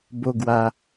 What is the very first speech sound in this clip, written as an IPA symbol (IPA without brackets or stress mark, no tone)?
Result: b